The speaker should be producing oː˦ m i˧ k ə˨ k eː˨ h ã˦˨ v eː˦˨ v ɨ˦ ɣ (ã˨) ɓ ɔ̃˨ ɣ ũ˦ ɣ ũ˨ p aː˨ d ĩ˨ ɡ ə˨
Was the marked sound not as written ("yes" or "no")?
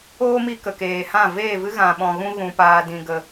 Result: no